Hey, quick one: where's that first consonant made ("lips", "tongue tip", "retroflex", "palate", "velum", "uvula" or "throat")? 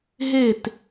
throat